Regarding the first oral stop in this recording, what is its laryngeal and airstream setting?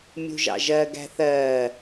plain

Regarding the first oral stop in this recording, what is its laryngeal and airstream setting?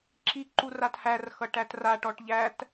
click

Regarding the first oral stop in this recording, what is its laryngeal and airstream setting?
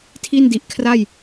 aspirated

